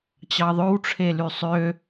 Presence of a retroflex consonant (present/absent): present